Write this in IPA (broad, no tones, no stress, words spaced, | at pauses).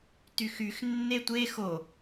tyxyx nːetʷe xo